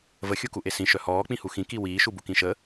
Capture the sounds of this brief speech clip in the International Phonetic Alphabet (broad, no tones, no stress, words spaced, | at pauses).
vəxʲukuʔe sĩʃœ hɔːk͡pĩhu xĩki wiːʃubukĩ ʃə